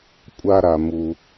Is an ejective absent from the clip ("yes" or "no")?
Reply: no